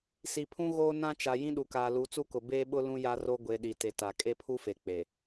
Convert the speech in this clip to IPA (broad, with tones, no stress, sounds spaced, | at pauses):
s i˨ pʰ ũ˦ ɣ oː˦ n ã˦ t͡ʃ a˨ j ĩ˦ ɗ u˨ k aː˨ l u˨˦ t͡s u˦ k ʊ˨ b eː˦ ɓ ʊ˦ l ũ˦ j a˦ r o˦ ɡʷ e˨ ɗ i˨ t e˨ t a˨ kʼ e˦ pʰ u˦ f e˨ k͡p e˨